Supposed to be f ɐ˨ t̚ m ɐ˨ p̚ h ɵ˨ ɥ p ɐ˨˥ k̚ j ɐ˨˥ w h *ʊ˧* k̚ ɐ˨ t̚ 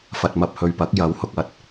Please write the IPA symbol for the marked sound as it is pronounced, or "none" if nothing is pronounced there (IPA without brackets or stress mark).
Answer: ʊ˨